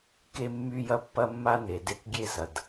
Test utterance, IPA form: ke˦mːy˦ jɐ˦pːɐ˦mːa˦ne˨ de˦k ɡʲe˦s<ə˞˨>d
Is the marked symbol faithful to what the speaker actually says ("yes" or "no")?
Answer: no